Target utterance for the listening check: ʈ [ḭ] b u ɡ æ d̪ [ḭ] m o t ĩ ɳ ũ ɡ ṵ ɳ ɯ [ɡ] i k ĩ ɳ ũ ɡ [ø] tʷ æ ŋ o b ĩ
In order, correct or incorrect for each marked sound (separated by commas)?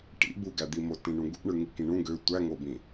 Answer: correct, incorrect, incorrect, correct